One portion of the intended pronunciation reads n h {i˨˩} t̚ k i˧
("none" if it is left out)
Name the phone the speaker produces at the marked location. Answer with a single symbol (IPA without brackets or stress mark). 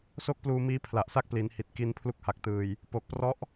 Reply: i˨˩